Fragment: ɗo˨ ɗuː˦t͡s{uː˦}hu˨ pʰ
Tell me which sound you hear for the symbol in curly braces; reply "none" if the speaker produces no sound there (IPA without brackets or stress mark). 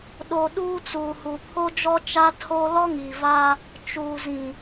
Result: uː˨